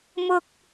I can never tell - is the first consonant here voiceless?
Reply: no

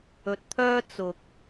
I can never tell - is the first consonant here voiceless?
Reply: yes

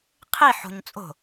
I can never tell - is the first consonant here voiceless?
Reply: yes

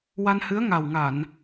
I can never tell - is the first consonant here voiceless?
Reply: no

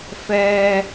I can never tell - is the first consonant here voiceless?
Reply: yes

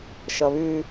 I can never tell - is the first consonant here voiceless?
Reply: yes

